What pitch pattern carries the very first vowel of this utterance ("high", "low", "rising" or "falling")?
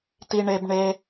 high